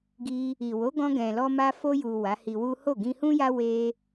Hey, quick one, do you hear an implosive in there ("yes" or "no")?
no